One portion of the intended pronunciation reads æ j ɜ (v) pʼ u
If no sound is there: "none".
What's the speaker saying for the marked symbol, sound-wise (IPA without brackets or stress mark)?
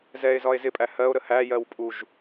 w